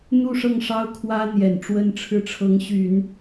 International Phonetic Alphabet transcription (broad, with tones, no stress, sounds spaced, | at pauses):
n̪ u˥˧ ʂ ɤ˥˩ ŋ ʂ ɑ˥ ʊ̯ kʰ w ä˥ n̪ j ɛ˨˩ n ʈ͡ʂ w ə˥ n ʈ͡ʂʰ ɻ̩˥ ʈ͡ʂʰ ɤ˧˥ ŋ ɕ y˨˩˦ n